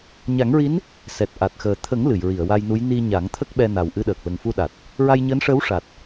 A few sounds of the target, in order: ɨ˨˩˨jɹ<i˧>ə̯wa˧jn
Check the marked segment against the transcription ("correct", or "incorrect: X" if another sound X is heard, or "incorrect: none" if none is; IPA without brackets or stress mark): incorrect: i˨˩˨